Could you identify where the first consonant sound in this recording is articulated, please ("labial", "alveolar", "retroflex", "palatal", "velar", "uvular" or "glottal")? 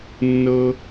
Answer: alveolar